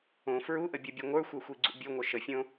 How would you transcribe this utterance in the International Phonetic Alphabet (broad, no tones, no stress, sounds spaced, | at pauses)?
õ f ɹ u ʔ ə bʲ u bʲ o ŋʷ ə˞ xʷ ɛ xʷ i ɡ͡ǀ ṵ bʲ o ŋʷ œ ʃ ə fʲ õ